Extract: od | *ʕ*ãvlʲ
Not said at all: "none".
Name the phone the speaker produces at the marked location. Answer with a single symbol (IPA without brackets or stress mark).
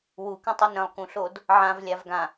ʕ